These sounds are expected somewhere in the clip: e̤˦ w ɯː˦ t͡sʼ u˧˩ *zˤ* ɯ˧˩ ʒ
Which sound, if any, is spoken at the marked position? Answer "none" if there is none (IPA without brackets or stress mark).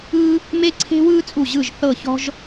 ʑ